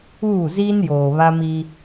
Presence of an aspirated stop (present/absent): absent